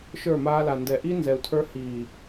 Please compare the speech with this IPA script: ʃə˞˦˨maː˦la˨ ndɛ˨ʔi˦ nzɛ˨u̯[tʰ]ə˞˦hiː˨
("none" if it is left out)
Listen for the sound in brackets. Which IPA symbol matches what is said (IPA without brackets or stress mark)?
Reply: tʰ